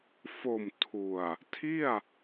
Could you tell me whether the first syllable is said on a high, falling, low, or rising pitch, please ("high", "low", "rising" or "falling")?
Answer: low